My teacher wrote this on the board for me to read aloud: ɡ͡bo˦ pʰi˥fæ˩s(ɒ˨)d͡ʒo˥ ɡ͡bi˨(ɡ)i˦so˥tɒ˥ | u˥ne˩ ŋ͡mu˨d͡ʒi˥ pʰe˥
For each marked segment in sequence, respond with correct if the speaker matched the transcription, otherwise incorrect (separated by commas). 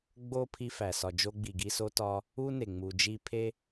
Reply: correct, correct